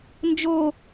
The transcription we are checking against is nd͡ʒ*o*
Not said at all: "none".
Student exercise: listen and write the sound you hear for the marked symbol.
o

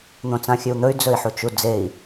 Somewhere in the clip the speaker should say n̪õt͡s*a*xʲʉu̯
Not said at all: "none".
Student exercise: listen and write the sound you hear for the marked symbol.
ã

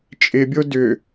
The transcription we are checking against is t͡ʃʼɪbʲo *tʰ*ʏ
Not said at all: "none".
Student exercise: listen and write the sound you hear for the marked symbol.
d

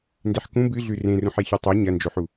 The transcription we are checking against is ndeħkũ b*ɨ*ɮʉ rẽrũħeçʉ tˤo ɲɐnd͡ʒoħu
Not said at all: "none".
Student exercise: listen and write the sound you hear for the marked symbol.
ɨ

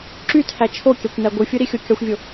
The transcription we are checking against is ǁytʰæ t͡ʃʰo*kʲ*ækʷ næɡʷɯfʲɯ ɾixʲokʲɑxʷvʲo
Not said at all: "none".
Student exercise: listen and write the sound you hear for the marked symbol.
kʲ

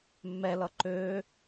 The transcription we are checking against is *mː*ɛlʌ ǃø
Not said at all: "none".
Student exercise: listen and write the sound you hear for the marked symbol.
mː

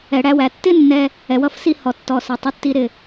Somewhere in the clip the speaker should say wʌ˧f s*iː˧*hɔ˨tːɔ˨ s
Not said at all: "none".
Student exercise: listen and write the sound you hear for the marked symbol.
i˧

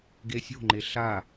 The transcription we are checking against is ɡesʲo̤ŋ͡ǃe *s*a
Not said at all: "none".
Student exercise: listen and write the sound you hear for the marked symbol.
ɬ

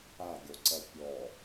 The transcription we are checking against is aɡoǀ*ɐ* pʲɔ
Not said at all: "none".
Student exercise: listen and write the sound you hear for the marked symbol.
ɐ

